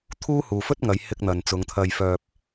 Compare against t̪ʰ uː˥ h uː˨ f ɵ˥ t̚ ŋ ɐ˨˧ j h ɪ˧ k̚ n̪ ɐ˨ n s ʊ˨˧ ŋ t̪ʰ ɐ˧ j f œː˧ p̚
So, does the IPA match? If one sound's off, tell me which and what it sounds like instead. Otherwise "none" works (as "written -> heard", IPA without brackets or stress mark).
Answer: s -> t͡s